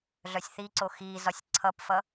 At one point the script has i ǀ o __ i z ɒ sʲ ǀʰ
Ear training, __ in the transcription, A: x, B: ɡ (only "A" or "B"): A